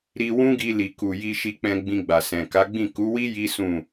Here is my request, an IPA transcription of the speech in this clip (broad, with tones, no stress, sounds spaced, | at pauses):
ɾ i˧ w ũ˦ ɡ i˧ l i˨ k u˨ j i˧ ʃ i˧ k͡p ɛ̃˧ ɡ͡b ĩ˧ ɡ͡b a˨ s ɛ̃˨ k a˨˦ ɡ͡b ĩ˦˨ k u˨˦ w i˦ j i˦ s ũ˦˨